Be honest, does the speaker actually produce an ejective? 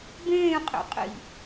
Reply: yes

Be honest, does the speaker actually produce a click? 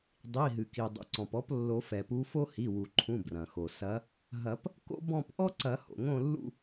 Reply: yes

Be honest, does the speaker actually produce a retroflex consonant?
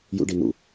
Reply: yes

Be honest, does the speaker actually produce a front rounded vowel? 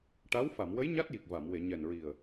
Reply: no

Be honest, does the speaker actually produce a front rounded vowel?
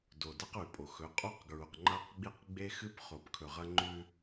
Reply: no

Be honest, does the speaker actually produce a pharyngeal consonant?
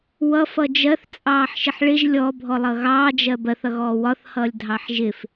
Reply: yes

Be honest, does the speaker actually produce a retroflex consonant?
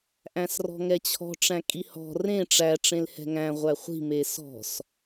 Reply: yes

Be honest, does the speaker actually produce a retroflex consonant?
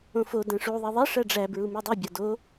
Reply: yes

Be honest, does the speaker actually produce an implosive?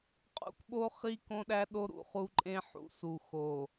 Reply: yes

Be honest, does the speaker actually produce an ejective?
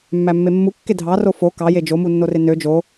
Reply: no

